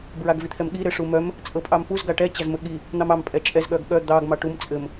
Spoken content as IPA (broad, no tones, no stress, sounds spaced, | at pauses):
b ɹ a ɡ v i t̪ʰ ɛ m ɠ i ɾ ɘ ʂ u m œ m | t͡sʼ ɤ pʼ ɑ m p u z ɡ a ʈ ɛ t͡ɕ a z m ɘ ɠ i | n̪ ɑ m ɑ m pʼ ɛ t͡ʃʼ ɛ z ɠ œ ɡ ɠ œ d̪ ɑ ɡ m ɑ ʈ u m t͡sʼ ɘ m